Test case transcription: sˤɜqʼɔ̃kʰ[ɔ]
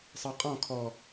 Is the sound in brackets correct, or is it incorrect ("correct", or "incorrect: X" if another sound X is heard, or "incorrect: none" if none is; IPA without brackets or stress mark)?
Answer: correct